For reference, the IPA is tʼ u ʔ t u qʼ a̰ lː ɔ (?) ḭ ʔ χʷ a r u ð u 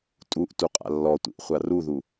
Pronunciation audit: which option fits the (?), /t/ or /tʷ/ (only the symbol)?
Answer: tʷ